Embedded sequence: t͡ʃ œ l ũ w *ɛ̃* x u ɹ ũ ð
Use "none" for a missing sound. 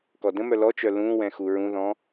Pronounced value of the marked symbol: ɛ̃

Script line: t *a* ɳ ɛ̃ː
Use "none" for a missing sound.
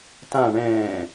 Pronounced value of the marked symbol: ã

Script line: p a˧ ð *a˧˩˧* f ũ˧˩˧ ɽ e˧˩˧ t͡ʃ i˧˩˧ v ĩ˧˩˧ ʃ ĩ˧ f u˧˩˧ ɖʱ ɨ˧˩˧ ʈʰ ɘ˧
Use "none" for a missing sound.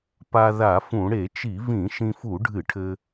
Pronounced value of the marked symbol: a˧˩˧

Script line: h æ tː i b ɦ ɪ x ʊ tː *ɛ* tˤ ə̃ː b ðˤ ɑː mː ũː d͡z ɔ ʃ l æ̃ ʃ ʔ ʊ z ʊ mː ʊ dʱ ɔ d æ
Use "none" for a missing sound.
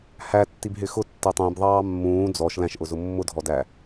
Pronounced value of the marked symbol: ɛ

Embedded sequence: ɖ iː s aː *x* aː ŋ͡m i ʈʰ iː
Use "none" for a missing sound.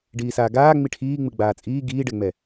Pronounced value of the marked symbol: ɡ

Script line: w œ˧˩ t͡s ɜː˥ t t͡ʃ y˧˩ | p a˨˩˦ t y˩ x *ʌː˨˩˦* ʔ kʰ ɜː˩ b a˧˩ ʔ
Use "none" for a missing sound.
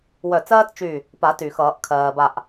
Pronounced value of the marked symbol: ʌː˨˩˦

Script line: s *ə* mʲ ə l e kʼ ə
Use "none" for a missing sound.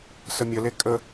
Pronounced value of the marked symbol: ə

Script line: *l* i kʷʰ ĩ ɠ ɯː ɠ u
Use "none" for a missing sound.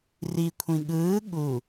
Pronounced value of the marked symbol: r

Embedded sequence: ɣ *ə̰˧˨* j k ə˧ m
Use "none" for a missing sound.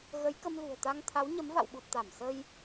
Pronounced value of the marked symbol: ə˨˦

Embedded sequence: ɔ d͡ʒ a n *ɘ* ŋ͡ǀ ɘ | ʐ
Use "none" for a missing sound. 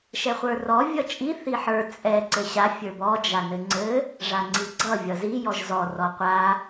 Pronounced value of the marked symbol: ɘ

